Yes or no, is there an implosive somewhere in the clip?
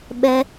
yes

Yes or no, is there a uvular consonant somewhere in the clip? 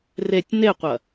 yes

